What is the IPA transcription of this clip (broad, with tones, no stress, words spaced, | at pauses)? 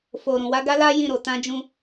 fo˨ ɾũ˨wa˨˦ɡa˦la˦ jĩ˦˨ɾo˨tã˧d͡ʒũ˧